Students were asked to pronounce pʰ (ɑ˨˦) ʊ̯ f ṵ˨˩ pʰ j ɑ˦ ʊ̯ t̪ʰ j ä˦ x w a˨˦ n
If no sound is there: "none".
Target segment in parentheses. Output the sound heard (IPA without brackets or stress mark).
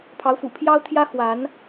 ɑ˨˦